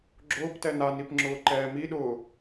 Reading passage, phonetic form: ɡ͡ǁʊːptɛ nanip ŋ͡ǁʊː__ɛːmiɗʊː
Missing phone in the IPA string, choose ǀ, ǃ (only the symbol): ǃ